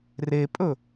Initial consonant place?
alveolar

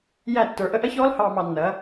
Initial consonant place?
palatal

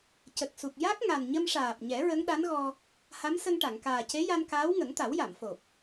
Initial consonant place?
palatal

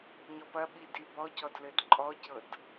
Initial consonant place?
palatal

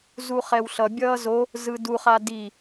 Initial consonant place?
alveolar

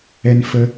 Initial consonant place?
alveolar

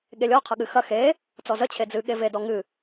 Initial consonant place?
velar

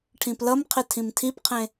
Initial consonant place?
retroflex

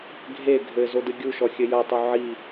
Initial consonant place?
velar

